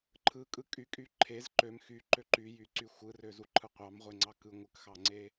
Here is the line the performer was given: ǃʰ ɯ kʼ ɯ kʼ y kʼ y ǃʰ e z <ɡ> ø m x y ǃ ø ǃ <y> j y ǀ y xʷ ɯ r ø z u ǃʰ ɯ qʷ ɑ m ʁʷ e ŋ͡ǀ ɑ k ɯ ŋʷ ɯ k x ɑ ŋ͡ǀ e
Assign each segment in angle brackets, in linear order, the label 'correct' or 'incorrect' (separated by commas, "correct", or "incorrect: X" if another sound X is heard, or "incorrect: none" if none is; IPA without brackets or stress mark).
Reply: incorrect: ǃ, correct